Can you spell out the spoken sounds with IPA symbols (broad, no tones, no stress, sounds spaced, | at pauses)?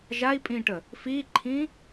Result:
ʒ a i̯ pʼ ĩː ʈ ə | f iː ǃʰ ĩː